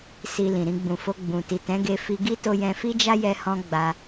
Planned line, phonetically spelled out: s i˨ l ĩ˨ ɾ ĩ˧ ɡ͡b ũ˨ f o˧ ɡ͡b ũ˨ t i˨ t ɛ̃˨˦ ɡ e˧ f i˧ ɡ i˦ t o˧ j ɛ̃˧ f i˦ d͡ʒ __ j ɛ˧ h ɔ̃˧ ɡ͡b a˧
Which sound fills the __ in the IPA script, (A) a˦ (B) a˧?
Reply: A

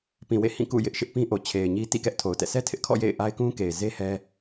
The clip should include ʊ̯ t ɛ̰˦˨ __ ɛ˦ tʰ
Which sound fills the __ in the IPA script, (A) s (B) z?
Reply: A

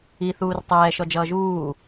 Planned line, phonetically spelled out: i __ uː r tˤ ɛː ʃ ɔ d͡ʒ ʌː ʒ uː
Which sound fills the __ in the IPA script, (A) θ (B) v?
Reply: A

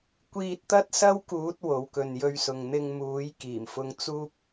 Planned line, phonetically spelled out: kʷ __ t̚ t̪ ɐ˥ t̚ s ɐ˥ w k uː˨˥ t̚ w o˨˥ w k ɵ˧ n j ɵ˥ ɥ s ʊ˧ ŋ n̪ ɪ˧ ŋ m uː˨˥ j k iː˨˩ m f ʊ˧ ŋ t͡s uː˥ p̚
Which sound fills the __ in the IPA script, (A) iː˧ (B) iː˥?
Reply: A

